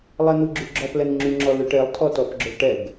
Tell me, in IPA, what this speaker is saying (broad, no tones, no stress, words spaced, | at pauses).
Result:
lˠɛn̪uɡ͡ǁʉɡ͡ǁɔp lɛnŋ͡ǁyŋ͡ǁɔlʉ ʈelˠ tʰɔtɔpɡ͡ǁœɭʈɛɡ